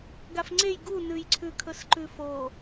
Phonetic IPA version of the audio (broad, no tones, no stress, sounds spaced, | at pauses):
ɡ a f ŋ͡ǀ e j ɡ u n ʉ j ǀʰ ʉ kʰ ɵ s ǃ ʉ f o